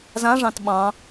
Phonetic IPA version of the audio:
z ã ʐ ɑ̃ t ɓ ɑ̃

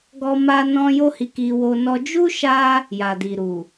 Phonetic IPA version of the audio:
ɡ ɔ˦ m a˦ n ɔ̃˦ j o˦ h i˧ k i˧ w o˧ n ɔ˧ d͡ʒ u˦ ʃ a˦ | j a˨ d i˨ ɾ u˨

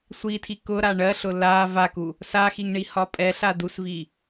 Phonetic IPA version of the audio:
sʷ i tʰ i k ʊ ɾ a ɳ ɜ ɬ ʊ l a v a k u | s a x i ŋ ɳ i h ɒ pʼ ɛ ɬ a d u s v i

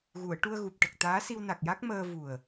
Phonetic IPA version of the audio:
ɣ u˨˩˨ ə̯ ʈ u˧ ə̯ ɣ u˨˩ p̚ ʈ ə˨˩ k̚ t̪ aː˧˥ s i˧ w n a˨˩ k̚ j a˦˥ k̚ m əː˧ v u˨˩ ə̯

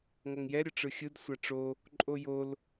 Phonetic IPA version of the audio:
ŋ ɐ ŋ j ɛ ɾʲ ə ʈ͡ʂ ɯ xʲ ɯ d sʷ a ʈ͡ʂ o | ǃʼ o j o l

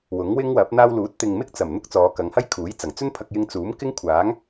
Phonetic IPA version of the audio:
w ʊ˨˥ ŋ w ɪ˥ ŋ w ɐ˨˥ p̚ n̪ aː˧ w l uː˨˥ t̚ t̪ ɪ˨ ŋ m ɪ˥ k̚ t͡s ɐ˨˩ m n̪ ʊ˥ k̚ t͡s ɔː˨˧ k ɐ˨˧ ŋ h ɐ˥ j kʰ uː˨˥ j t͡s ɐ˨˩ ŋ t͡s ɵ˥ n pʰ ɐ˧ k̚ j ɪ˧ ŋ t͡s uː˨˥ m k ɪ˥ ŋ kʷʰ aː˨˥ ŋ

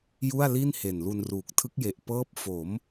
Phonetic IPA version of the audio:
j u˥˩ a̯ l i˥˩ n h e˨˩ n l u˧ n r uː˨˩ k̚ tʰ ɯ˦˥ k̚ j e˨˩ ʔ p ɤː˦˥ p̚ f o˩˦ m

